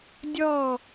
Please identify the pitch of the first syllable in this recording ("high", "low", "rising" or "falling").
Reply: falling